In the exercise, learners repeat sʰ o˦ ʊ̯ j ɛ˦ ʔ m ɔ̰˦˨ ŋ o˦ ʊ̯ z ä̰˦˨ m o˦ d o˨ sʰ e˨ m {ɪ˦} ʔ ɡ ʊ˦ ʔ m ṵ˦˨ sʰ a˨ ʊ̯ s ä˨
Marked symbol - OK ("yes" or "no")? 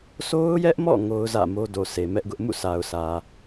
no